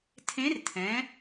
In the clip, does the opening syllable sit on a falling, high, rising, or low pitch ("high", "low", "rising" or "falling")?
rising